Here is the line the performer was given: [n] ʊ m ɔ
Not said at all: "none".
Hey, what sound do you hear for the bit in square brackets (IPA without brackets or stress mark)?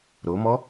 ɾ